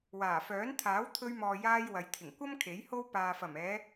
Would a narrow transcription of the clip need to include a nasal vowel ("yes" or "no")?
no